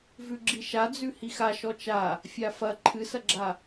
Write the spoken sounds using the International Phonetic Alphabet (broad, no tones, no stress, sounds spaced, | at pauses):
v ʉ ɡ͡ǁ i ʃ a d͡z ʉ h i x a ʃ ɔ t͡ʃ a | fʲ a f ɐ ǃʰ ɨ s ɐ ɡ͡ǁ a